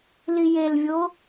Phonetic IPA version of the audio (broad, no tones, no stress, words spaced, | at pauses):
lijelvʲo